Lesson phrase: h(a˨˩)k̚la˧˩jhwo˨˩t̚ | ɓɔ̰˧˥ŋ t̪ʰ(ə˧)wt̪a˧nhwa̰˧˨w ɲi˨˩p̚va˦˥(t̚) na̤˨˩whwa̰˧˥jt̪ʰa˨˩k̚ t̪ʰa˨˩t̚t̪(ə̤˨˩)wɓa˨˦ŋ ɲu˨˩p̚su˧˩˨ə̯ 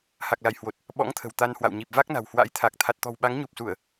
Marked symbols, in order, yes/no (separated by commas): yes, no, no, no